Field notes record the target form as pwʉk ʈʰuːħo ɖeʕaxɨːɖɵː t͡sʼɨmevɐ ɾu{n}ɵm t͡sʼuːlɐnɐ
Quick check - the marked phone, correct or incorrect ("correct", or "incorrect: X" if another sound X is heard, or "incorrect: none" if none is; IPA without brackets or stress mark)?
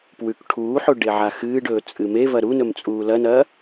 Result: correct